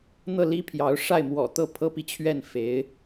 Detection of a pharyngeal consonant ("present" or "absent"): absent